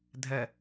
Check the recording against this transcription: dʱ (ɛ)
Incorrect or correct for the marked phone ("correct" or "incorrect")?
correct